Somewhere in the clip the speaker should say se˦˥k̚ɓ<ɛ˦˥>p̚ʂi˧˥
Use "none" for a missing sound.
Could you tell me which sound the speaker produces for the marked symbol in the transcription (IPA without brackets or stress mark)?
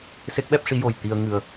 ɛ˦˥